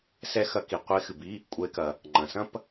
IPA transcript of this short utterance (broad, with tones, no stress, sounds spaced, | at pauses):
s ɛ˥ x ɐ˧˥ k i˨ qʷ e˧˥ x ɨ˨ b i˧˥˧ | kʷʼ ɛ˧˥ e̯ k ɐ˨ | ŋ͡ǃ ɐ̃˨ s ɐ̃˥ p